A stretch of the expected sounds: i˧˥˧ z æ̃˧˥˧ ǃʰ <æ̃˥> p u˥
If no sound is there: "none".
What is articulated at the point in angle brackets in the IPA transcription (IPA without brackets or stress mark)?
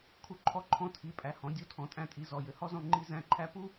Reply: æ˥